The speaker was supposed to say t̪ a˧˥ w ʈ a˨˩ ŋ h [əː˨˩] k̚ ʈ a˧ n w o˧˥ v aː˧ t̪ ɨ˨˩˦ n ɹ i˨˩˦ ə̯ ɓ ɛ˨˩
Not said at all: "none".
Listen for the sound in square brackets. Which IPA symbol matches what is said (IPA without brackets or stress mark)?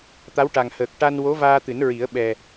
əː˨˩